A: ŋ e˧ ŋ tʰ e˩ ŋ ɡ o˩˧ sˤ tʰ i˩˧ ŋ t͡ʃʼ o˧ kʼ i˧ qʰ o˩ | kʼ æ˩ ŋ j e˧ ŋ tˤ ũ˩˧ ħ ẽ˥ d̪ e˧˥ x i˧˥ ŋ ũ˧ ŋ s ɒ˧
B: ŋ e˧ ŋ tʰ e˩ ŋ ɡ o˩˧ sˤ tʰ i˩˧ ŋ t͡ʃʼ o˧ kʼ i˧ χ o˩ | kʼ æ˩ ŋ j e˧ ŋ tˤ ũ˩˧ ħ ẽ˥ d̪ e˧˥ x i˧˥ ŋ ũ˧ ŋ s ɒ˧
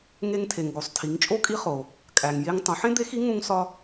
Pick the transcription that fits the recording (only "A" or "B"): B